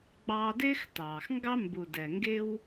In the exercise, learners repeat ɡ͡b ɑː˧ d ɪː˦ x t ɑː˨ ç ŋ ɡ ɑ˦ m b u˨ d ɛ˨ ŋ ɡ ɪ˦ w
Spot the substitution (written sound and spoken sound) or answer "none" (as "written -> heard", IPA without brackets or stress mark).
ç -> x